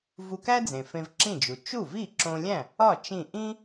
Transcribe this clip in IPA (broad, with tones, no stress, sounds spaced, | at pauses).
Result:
v u˧ k æ˥ d͡z ẽ˩ f ẽ˧ v ǁ ĩ˥˩ d͡ʒ u˩ t͡ʃ u˥˩ v i˥˩ ǁ õ˧ lʲ æ̃˥˩ | ɒ˥˩ t͡ʃ ĩ˥˩ ʔ ĩ˥